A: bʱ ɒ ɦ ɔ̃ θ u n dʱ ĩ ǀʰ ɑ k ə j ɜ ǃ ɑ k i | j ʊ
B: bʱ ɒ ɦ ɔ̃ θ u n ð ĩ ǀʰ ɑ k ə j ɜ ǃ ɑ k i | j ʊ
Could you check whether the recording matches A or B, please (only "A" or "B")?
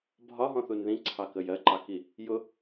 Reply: B